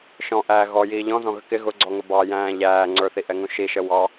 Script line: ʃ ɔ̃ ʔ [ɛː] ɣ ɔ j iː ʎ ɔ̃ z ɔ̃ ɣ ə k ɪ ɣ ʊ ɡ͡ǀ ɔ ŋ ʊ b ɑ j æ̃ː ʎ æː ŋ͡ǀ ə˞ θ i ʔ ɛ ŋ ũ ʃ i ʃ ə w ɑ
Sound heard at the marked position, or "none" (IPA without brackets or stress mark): æː